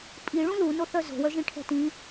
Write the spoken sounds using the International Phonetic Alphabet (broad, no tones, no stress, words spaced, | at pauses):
pʼiɭũ lunoθœ zo̤wœʒĩʈʰɛ̤ tĩ